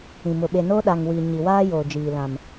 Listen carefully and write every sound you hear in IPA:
ĩ˨ m ʊ˨ ɓ e˨ n oː˦ ɗ a˨ ŋ w i˨ ɲ i˨ w aː˦ j oː˨ d͡ʒ iː˨ l ã˨ m

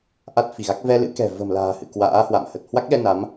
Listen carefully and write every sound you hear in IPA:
ʔ a˦˥ t̚ f i˧˩ ɣ a˦˥ k̚ v ɛ˧ l ɨ̰˧˥ k ɛ̤˨˩ v ə̤˨˩ m l a̤ː˨˩ h ɨ̰˧˨ k w a̰ː˧˥ h w a̰˧˨ m h ə˨˩ t̚ h w a˦˥ k̚ ɗ ɛ˧ n a˨˦ m

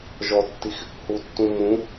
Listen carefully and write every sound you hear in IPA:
ʒ ɔ tː i x | h u tː ũ m ũ

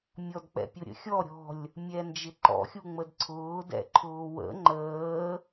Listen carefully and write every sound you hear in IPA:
mʲ ɔ d k͡p ɛ̰ pʲ ʊ ɾʲ ə̰ xʲ ɔ ɾʲ ɔ̤ lʲ | mʲ ɛ n d͡ʒ ɪ ǃ ɔ̰ xʲ u ŋ͡m ə d ǀʰ ʊː d ɛ̰ ǃʰ ʊː w ə̰ ŋ͡ǃ əː

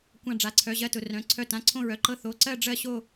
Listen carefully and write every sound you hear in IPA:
kʷ ã˦˨ ɖ͡ʐ a˩˧˩ ǀʰ œ˩˧˩ ʑ ɜ˦˨ t ʊ˩˧˩ r œ̃˩˧˩ ǀʰ œ˦˨ t ã˩˧˩ ǀʰ õ˦˨ ɹ œ˩˧˩ ǃ ɤ˦˨ θ o˩˧˩ ǀ ɜ˦˨ ɖ͡ʐ ɜ˦˨ ɕ o˦˨

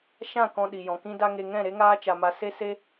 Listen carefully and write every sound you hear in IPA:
ʃ ã˦˨ k ɔ̃˧ ɗ i˨ j ɔ̃˨ k ĩ˧ d a˧ ŋ e˧ ŋ ɛ̃˦˨ ɾ e˦ ŋ aː˦ t͡ʃ a˧ m a˧ s e˦ s e˦

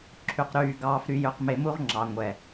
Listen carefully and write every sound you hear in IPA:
ǁʰ y˨ q ɾ yː˨ ɡ ɑː˨ f ɾ y˨ j ø˨ q m e˨ m u˦ ʁ ŋ͡ǁ ɑ˨ ŋʷ ɛ˨

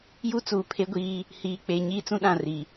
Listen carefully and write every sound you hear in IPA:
j u˦ t͡s uː˨ pʰ e˦ ɡʷ iː˦ | h iː˨ k͡p e˨ ɲ iː˦ t͡s ũ˦ ɗ ã˦˨ r i˨

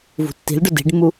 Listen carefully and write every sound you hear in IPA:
v ṳ tː i̤ l ɖ ʊ d i̤ ɖ mː u

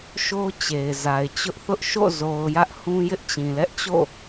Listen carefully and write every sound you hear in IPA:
ʃ o˦ t͡ɕ e˨ ɪ̯ z a˨ ɪ̯ t͡ɕ ʊ˦ ʔ θ ʊ˦ ʔ ʃ o̰˦˨ z o˨ ʊ̯ j ä˦ ʔ h ũ˦ j ɪ˦ ʔ t͡ɕ ĩ˨ l ɛ˦ ʔ t͡ɕ o̰˦˨

